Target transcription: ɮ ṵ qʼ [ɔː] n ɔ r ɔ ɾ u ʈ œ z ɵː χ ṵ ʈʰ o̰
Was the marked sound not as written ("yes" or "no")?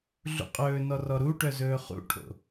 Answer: yes